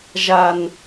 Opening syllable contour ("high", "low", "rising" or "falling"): low